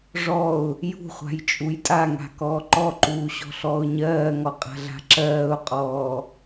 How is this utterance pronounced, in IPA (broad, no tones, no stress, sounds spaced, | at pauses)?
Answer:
ʐ ɔ ʊ̯ | j ṳ χʷ a̤ j t͡ʃʼ u j tʼ a ŋ a̤ k ɔː ǃ ɔ ǃ uː ɕ ɔ̤ ɬ ɔː ʊ̯ ɲ ɜː ŋ ɔ qʼ a̤ ɮ a̤ ǁ ɜː ʊ̯ qʼ ɔː